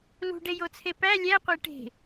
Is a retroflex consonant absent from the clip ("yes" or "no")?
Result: no